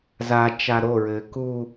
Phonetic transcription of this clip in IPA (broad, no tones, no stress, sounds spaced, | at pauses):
z a t͡ʃ a ɾ o ɹ ɘː k u